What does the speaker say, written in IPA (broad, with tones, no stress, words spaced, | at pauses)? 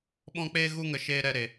ɓɔ̃˦k͡peː˦ɣu˦ŋə˧ ʃeː˦ɾɛ˦ɾe˧